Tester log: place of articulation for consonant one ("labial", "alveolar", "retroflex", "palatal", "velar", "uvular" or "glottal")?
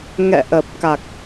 velar